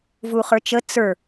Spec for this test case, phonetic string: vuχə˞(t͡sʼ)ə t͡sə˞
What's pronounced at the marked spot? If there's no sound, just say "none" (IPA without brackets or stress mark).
t͡ʃ